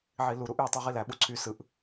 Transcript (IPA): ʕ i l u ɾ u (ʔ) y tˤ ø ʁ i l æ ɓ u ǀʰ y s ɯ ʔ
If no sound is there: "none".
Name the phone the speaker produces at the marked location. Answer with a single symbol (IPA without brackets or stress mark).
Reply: ʔ